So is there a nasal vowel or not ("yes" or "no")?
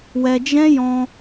yes